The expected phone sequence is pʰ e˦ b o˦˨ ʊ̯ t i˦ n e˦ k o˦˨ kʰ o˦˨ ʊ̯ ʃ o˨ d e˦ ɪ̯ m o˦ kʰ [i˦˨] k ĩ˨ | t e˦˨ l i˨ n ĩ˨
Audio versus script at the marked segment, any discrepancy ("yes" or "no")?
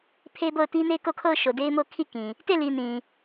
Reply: no